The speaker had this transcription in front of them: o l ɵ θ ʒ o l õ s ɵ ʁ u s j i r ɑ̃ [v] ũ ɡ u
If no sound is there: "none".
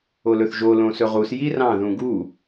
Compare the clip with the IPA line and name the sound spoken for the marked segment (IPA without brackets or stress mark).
ð